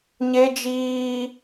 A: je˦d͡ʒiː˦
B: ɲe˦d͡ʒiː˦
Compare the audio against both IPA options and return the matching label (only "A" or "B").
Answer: B